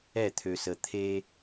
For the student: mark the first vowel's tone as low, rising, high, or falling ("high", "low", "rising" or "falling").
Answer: falling